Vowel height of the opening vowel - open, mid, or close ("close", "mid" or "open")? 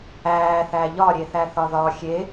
open